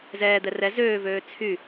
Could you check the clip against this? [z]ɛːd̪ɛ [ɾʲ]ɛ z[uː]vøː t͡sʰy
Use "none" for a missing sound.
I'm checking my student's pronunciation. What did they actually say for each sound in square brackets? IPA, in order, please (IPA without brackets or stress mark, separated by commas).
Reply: z, r, øː